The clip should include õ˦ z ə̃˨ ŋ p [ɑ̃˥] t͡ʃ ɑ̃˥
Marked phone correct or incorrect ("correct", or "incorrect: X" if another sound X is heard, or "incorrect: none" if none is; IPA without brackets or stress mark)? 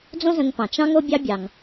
incorrect: ɑ̃˩